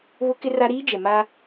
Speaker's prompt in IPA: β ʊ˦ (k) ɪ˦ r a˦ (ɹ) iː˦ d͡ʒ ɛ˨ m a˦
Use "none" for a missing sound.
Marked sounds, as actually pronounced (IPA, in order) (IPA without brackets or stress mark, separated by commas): k, ɾ